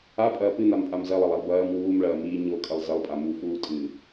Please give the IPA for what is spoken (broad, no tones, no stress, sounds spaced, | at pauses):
a pʼ ɐː p ɨ n a m pʼ a m z ɐ lˠ ɐ lˠ a lˠ b ɐː m w uː m ɭ ɐː m iː ɲ o kʼ ɐ lˠ z ɐ lˠ pʼ a m u f uː tʼ ɨ